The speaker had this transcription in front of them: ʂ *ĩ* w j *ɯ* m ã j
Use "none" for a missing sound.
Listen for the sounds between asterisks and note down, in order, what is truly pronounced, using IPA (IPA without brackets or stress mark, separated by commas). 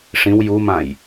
ĩ, u